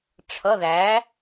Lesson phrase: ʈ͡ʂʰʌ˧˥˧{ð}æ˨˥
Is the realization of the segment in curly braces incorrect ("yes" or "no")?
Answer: no